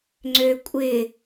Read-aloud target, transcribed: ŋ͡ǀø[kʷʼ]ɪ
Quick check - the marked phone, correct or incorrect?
correct